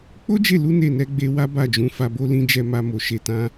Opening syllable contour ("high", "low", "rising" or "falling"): high